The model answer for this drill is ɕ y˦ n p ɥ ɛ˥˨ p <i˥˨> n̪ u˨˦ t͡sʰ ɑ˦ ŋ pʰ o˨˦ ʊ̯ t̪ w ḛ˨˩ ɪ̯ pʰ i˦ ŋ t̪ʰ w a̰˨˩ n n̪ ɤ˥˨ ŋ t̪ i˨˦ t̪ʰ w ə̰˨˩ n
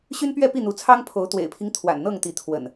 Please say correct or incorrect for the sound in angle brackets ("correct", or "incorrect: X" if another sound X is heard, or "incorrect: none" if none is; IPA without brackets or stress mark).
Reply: correct